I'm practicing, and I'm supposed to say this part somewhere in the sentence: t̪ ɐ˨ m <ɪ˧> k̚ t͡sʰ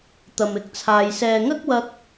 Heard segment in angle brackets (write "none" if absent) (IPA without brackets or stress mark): ɪ˨˥